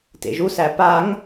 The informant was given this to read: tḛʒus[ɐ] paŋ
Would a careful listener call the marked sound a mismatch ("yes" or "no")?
yes